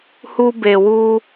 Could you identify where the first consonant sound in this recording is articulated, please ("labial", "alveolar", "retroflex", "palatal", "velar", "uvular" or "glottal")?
glottal